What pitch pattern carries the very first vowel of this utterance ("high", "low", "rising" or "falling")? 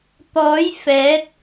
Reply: rising